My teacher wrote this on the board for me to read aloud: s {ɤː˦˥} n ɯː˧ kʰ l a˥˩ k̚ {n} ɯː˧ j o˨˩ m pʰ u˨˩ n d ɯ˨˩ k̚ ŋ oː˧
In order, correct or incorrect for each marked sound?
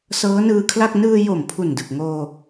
correct, correct

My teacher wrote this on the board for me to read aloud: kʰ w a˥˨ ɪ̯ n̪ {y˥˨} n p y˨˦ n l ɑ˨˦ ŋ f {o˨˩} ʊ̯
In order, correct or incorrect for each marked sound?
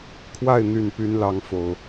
incorrect, correct

